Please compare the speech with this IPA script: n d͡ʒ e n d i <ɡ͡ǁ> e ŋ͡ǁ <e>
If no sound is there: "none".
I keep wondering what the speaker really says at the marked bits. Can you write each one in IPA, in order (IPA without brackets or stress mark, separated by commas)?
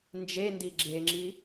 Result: ɡ͡ǁ, i